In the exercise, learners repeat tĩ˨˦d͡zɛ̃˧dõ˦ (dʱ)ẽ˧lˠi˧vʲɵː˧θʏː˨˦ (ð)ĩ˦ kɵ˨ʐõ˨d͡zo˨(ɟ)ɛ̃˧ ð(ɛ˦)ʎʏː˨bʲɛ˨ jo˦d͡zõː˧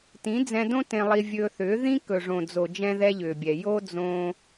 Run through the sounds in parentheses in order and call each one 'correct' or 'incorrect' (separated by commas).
incorrect, correct, incorrect, correct